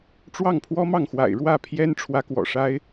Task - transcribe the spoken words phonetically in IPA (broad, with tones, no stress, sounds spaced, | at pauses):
ʈ͡ʂ w ɑ˥˩ ŋ pʰ w ɔ˥ m ɑ˥˩ ŋ x w a̰˨˩ ɪ̯ ɻ w ä˥˩ pʰ j ɛ˥ n ʈ͡ʂʰ w ä˧˥ k w ɔ̰˨˩ ʂ a˥ ɪ̯